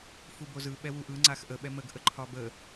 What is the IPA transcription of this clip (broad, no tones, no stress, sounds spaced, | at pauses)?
f u b o z ɯ ɓ ɛ w u ʔ ɯ ŋ͡ǀ a x ʔ ə ɓ ɛ m ə ɡ ʔ ə ǃʰ ɒ b ə